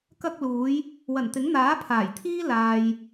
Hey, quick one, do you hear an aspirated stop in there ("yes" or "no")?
yes